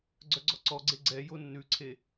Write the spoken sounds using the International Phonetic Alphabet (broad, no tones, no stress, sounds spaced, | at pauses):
ɡ͡ǀ œ ɡ͡ǀ ɔ ǀ ɔ ɡ͡ǀ e ɡ͡ǀ ɛ j o nː ʉ ǀʰ e